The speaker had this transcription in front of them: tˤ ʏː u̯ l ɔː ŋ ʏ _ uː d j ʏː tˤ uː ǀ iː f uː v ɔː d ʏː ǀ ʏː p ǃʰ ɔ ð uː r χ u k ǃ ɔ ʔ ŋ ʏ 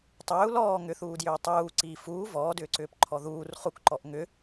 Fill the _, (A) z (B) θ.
B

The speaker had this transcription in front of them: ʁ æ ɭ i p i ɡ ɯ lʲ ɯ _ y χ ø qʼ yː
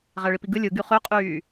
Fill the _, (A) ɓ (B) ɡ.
B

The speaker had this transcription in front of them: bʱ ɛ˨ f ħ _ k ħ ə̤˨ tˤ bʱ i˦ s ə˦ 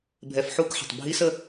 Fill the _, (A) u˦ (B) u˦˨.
B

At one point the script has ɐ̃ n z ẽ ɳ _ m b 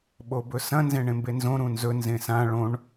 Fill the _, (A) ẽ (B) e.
A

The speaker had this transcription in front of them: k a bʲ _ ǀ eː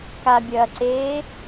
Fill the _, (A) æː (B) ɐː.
B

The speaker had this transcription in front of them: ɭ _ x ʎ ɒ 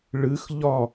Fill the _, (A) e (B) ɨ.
B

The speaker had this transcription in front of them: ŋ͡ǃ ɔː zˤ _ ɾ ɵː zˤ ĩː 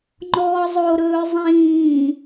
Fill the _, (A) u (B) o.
B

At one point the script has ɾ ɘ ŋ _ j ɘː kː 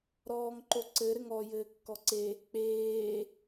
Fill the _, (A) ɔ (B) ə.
A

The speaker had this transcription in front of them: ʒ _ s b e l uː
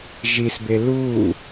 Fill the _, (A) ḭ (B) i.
B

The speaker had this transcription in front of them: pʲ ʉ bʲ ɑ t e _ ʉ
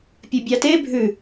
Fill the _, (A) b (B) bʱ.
B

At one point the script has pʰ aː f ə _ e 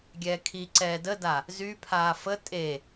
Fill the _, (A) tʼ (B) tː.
A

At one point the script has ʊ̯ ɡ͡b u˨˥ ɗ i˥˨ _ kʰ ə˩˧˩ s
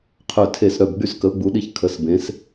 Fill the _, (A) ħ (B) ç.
B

